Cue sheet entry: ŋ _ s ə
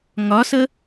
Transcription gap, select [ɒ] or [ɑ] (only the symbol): ɒ